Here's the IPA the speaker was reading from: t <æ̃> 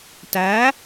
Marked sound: incorrect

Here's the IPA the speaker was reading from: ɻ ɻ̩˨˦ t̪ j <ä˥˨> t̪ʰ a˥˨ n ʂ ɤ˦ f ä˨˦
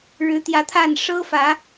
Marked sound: incorrect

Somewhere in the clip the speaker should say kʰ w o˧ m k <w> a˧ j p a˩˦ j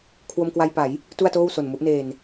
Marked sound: correct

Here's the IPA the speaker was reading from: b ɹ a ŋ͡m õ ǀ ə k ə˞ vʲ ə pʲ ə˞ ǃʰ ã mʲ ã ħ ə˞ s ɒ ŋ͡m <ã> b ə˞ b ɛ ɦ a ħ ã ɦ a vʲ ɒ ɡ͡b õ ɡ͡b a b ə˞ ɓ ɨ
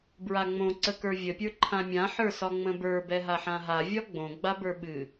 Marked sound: incorrect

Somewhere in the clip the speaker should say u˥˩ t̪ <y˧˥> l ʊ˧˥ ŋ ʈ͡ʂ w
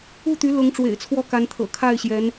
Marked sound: correct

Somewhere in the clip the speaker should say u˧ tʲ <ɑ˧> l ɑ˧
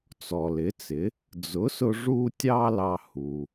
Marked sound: correct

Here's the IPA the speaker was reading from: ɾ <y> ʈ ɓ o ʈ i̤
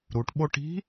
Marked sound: incorrect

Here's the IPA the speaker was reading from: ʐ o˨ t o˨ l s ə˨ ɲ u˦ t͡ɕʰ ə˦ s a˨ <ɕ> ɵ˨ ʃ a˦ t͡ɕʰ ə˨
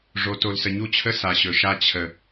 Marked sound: correct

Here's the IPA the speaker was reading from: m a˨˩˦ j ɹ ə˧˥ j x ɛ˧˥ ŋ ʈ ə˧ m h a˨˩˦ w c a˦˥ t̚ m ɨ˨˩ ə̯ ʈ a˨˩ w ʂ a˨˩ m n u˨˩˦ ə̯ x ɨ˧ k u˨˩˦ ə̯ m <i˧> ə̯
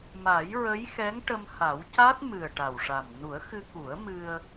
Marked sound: incorrect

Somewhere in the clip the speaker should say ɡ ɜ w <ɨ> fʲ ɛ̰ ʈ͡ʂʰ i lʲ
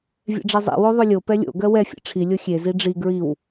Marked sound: incorrect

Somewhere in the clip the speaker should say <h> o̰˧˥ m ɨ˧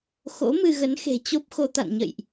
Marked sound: incorrect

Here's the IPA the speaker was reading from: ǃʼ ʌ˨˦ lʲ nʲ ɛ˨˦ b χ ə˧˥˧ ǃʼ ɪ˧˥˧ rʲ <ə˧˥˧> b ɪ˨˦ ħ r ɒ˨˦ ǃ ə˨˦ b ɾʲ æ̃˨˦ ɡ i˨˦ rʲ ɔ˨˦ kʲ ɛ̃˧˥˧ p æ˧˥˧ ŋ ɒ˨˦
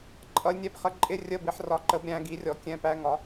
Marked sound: correct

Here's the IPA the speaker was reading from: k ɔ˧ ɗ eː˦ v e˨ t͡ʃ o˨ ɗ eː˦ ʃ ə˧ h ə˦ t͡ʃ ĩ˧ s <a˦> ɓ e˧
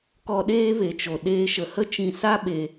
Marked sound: correct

